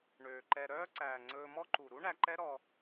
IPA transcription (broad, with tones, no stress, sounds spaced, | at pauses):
ɳ øː˨ ǃ ɛ˧ ɾ œː˦ ǀ æː˨ ŋ͡ǀ ɵː˧ m ɔ˦ ǃ u˨ ɾ u˦ ɳ æ˧ ǃ ɛ˦ ɾ ɔ˧